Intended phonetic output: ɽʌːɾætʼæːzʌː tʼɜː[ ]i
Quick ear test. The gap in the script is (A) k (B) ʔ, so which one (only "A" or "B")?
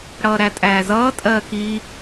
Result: A